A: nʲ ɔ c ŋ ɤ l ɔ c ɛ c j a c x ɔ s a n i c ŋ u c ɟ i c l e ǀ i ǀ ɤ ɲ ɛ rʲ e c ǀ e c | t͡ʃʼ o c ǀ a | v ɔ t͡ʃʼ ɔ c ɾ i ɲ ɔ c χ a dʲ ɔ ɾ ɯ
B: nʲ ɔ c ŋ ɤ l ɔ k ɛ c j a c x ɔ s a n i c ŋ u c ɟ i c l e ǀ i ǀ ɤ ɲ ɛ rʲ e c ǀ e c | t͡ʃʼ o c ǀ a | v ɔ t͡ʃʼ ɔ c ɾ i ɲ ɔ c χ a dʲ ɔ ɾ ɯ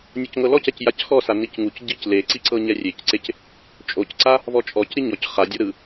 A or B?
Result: A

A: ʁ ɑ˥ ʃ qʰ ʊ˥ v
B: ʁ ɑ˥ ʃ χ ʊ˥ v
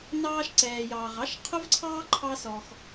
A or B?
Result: A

